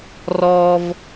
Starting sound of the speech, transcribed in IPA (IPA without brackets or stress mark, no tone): r